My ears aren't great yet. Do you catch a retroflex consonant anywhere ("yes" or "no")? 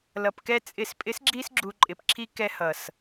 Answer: no